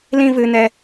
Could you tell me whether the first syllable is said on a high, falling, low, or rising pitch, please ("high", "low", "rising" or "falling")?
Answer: high